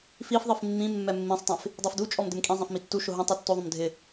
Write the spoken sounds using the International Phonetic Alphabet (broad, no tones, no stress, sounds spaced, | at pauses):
f i f ðˤ i f mː ĩ mː ɛ mː ĩ sˤ tˤ ẽ f | dˤ i f d u t͡ʃʼ ɔ m d ɪ m kʼ ĩ zˤ ɛ̃ f m i tː u ʃ ʊ ɦ ũ tˤ u tː o ðˤ õ m dʱ ɪ